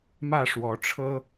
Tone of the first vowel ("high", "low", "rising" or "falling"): falling